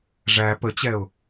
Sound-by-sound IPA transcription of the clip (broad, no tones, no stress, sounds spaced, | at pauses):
ʐ æ p ə t͡ɕ ɛ ʊ̯